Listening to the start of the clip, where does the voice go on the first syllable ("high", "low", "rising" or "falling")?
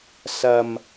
low